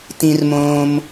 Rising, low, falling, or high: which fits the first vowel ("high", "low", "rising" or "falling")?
low